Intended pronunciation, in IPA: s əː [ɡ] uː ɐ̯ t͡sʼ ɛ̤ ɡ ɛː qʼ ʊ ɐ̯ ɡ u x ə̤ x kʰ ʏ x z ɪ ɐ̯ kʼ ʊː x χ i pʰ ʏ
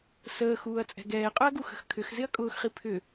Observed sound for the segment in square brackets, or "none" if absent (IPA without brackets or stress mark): x